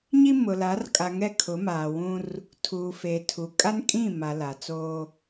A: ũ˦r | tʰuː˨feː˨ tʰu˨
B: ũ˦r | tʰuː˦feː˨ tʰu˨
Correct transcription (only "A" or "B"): A